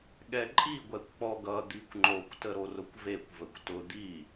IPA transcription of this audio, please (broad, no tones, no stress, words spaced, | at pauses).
ɠɛǃʼi ɡʷɛkʷk͡pɔɡʌ d̪ikʷŋ͡ǃokʷ təɾorʊkʷvekʷ vəkʷtʊ d̪i